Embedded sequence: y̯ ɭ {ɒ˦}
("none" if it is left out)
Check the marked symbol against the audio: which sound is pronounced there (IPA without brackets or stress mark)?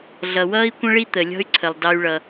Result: ʌ˦